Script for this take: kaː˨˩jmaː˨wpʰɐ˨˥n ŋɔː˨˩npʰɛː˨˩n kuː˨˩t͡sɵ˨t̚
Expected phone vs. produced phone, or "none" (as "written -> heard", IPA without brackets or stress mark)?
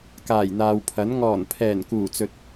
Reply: m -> n̪